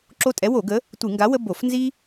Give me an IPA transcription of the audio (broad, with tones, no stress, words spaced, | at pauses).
ǁo˦ tʼɛ˨˥wo˧˩˧ɡə˨˥ | tʷɨ˧˩˧ŋɡa˨˥wə˦ bo˧˩˧f nzi˦